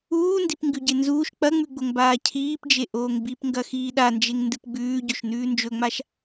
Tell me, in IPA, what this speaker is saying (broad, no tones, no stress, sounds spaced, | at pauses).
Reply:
uː n d i p ŋ ɡ ʉ ɟ e n z uː ʃ k͡p ɐ ŋ͡m ʉ ɡ͡b o ŋ b aː cʰ iː p d͡ʒ e ʔ oː ŋ b i p ŋ ɡ ɐ x iː ɗ a n d͡ʒ e ŋ n d ɨ p ɡ͡b ʉː ɟ ɵ ʃ n ʉː n d͡ʒ ɵ ŋ͡m a ʃ